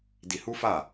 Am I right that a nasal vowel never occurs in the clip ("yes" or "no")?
yes